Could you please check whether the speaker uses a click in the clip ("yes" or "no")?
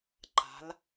yes